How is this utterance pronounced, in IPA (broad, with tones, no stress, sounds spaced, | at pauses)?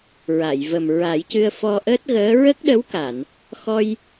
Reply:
ɹ a˨˩˨ j v ə˨˩ m ɹ a˨˩˦ j c ɨ˧ ə̯ f ɔ˧ ʔ əː˦˥ t̚ ɣ əː˧˥ ɹ ə˦˥ k̚ ɗ ə˧˥ w k a˨˩˨ n | x ɔ˧ j